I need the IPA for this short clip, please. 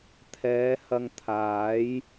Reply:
t̪ʰ ɛː˨˧ h ɐ˧ ŋ t̪ʰ aː˨˥ j

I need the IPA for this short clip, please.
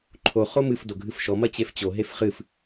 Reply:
ǃʰ o χ o m ɨ f d o ɡʱ ɨ f ʃ ɔ m ɐ t͡ɕ e f t͡ɕ o ɦ e f χ ɨ f

